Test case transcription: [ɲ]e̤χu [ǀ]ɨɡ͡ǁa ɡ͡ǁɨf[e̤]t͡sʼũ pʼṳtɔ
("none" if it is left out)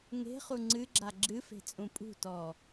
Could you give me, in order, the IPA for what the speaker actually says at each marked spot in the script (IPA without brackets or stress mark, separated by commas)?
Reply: ŋ, ŋ͡ǀ, e̤